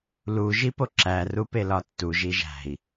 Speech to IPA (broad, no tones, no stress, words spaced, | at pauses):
lu ʒipoǁæ rupelɒtːuʒ iʒæ̤i̯